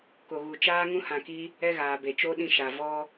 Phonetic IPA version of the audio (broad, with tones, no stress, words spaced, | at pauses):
ko˨ɣu˨ t͡ʃaː˦ŋũ˦ hã˧ki˦ | ɛ˦ɣaː˨be˨ t͡ʃo˦ɗĩ˧ʃa˨ vɔ˦